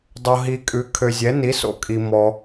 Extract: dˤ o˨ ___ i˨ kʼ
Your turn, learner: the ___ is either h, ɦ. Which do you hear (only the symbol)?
ɦ